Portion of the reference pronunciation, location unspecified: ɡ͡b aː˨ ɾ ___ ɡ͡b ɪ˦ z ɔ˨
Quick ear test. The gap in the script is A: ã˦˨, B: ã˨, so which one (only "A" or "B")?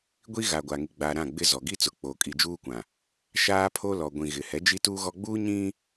A